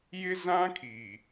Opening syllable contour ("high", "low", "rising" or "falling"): high